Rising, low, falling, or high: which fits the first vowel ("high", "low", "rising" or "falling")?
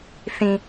low